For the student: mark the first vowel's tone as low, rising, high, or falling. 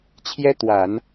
high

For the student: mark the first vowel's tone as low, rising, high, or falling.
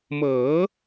rising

